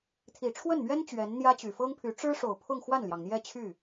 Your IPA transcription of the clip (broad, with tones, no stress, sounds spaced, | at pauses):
t̪ʰ i˨˩ ʈ͡ʂʰ w ə˥˩ n m ɥ ɛ˥ n t͡ɕ ɥ ɛ˧˥ n n̪ j ä˥ t͡ɕ y˨˩ f ɤ˥ ŋ pʰ y˧˥ ʈ͡ʂ ɻ̩˥ ʂ o˨˩ ʊ̯ pʰ ʊ˥˧ ŋ x w a˥˩ n l j ɑ˩ ŋ n̪ j ɛ˥˧ t͡ɕʰ y˥˩